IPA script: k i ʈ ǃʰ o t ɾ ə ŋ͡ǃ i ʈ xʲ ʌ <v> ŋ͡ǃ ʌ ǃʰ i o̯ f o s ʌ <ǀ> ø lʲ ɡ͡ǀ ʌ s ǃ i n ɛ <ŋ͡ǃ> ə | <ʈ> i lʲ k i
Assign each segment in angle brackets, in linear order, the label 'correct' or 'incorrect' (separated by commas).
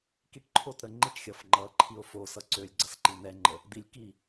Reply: incorrect, correct, correct, incorrect